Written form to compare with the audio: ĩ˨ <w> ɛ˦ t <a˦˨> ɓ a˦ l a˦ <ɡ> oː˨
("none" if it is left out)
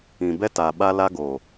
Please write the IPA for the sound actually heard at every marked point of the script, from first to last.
b, a˨, ɡ

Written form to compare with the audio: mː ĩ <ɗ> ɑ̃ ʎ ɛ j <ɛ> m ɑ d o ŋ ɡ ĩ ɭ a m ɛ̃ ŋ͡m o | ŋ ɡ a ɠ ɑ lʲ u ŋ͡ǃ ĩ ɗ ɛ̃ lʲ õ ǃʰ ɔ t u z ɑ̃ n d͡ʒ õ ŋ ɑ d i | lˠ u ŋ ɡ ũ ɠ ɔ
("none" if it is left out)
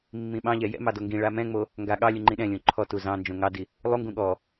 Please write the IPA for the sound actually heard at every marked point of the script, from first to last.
ɓ, ɛ̰

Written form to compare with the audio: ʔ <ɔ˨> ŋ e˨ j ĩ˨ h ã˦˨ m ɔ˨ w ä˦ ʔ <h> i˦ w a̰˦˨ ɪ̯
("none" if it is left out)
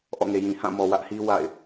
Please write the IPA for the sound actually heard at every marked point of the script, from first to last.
ɔ̰˦˨, h

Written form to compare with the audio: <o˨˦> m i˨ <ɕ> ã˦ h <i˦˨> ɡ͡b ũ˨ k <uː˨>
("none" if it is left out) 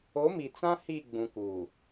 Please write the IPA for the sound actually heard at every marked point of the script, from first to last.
o˨˦, t͡s, i˦˨, uː˨

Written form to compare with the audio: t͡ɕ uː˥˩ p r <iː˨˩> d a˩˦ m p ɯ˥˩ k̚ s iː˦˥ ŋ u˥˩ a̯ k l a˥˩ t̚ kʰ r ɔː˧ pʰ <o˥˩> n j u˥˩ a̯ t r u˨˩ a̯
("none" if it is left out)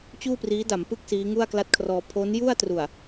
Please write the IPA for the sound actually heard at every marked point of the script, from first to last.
iː˦˥, o˦˥

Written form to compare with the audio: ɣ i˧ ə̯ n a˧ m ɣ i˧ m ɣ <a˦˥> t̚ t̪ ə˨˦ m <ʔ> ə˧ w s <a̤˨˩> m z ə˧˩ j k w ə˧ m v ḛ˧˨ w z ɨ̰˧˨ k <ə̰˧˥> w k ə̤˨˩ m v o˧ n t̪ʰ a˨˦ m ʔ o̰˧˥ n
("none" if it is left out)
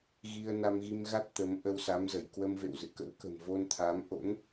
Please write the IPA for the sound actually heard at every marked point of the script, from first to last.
a˦˥, ʔ, a˨˦, ə̰˧˥

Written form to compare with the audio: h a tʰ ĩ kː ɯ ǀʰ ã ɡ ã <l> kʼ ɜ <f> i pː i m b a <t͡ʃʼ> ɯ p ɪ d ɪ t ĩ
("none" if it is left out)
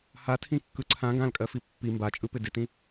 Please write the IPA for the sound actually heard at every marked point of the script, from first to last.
l, f, t͡ʃʼ

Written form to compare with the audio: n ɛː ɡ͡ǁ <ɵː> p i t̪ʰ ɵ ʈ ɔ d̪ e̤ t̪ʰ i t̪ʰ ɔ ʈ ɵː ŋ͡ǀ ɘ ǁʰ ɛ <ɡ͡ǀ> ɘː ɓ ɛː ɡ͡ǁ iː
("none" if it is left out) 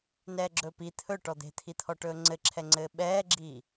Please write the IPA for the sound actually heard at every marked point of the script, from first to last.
ɵː, ŋ͡ǀ

